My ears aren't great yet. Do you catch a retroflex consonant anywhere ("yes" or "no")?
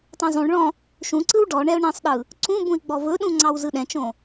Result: yes